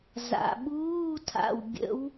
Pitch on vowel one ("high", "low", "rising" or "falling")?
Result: low